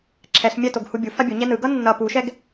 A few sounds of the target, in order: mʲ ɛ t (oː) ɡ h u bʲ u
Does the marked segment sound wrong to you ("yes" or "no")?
yes